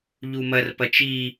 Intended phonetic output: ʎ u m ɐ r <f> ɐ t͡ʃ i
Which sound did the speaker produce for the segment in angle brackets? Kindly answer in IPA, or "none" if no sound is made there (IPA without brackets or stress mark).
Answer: p